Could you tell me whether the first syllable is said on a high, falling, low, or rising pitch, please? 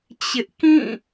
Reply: high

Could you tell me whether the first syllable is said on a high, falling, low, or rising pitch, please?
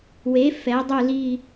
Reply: rising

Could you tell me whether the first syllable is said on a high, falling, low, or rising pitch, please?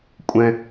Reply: low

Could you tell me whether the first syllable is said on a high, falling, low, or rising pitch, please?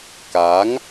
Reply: rising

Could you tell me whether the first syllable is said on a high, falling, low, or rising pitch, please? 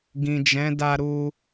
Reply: low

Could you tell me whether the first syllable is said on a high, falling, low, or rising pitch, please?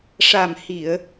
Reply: low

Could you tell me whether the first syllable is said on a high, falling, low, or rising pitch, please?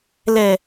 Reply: low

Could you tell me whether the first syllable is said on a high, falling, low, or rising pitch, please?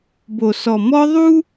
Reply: low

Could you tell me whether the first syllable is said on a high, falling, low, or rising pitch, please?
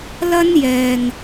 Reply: high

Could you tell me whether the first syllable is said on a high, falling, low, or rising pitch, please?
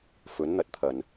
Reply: rising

